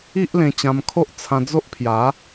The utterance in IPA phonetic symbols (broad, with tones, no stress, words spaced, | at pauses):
i˦ʔlẽ˧t͡ɕã˧mkʰo˦ʔ t͡sʰã˧d͡zo˦ʔpʰja˨˦